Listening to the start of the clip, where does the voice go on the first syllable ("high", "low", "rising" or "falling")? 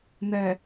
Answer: low